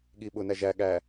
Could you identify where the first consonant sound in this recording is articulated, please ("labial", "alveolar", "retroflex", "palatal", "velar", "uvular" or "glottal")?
velar